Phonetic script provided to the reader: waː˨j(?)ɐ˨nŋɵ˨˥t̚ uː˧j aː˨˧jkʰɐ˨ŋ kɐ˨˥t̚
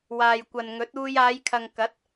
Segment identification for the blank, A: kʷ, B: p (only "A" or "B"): A